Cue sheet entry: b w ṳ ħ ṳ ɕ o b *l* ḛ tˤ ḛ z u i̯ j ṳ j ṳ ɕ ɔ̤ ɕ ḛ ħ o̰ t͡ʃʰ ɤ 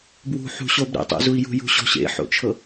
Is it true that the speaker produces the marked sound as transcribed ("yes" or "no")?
no